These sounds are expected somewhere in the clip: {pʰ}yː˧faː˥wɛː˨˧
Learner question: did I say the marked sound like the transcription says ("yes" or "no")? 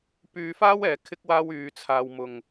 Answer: no